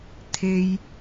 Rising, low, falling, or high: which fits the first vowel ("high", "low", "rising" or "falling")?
high